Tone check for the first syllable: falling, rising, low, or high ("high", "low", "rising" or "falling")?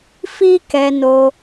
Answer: high